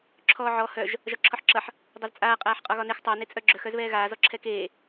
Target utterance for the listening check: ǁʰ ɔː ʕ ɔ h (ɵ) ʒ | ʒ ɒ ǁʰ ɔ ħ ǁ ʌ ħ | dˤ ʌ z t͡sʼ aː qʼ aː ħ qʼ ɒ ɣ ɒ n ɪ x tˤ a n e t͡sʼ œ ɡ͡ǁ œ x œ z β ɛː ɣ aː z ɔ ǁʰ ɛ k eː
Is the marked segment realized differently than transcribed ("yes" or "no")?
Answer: yes